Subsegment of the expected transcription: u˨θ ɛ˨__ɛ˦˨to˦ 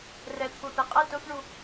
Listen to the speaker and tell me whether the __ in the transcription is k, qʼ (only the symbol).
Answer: qʼ